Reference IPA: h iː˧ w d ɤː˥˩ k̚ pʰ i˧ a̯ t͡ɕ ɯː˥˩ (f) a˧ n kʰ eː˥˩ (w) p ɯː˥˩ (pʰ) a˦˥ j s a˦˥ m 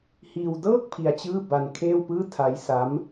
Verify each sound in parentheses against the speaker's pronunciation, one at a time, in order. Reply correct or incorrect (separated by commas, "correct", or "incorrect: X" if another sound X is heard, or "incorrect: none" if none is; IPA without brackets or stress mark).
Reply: incorrect: b, correct, incorrect: tʰ